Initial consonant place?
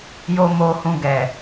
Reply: palatal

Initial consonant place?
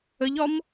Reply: palatal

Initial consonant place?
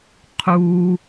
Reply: uvular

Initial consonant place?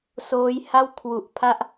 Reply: alveolar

